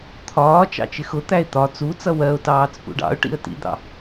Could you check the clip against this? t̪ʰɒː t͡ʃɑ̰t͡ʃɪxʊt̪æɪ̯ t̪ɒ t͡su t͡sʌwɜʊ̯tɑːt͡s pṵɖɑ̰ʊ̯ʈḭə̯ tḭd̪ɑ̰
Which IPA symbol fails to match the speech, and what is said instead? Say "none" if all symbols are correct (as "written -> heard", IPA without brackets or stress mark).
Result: none